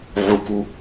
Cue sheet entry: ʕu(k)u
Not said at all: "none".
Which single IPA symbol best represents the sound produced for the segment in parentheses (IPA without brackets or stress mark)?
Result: k